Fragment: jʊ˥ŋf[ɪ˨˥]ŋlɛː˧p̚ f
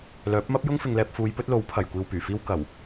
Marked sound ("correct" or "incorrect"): incorrect